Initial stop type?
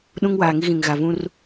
implosive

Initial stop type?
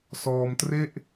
plain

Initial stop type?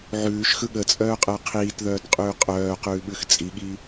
implosive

